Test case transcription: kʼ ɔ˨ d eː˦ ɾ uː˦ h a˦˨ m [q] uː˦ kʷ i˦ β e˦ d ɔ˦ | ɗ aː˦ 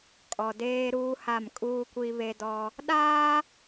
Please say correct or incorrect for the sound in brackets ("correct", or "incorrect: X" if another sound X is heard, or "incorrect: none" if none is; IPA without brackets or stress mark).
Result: incorrect: kʼ